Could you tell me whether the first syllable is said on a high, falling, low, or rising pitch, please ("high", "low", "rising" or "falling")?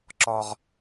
high